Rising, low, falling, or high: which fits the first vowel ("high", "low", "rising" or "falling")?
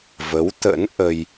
rising